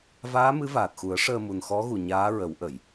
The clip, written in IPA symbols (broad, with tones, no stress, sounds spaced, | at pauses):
v aː˧˥ m ɨ˧˥ v aː˨˩ t̚ x u˨˩˦ ə̯ ʂ əː˧ m u˨˩ n x ɔ˧˥ ɣ u˨˩ ɲ aː˧˥ ɹ ə˨˩˦ w ʔ ə˨˩˨ j